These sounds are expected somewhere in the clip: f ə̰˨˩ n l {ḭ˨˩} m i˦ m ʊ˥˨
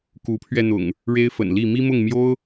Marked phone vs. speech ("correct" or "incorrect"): incorrect